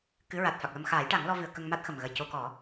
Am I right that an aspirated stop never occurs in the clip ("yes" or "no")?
yes